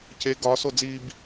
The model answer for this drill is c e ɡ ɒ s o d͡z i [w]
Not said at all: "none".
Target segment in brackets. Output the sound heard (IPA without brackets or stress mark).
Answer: b